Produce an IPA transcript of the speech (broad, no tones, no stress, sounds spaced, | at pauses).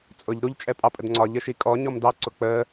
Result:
t͡sʼ ʊ ʎ ɾ u ʎ t͡ʃʼ ɛ pʼ ɑ pʼ ə d ŋ͡ǀ ɒ ʎ ə ʃ i kʼ ɔ ɲ ɔ m d ɑ ǀ ʊ k͡p ə